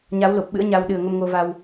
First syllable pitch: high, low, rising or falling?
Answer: rising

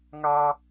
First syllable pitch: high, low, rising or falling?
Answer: high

